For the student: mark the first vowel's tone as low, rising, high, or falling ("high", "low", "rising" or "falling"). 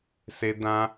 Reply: low